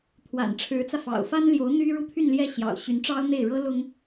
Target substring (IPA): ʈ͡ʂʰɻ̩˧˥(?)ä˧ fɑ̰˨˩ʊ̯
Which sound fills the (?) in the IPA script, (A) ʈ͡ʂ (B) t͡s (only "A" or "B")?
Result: B